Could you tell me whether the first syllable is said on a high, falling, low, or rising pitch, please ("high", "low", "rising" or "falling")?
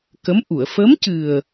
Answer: rising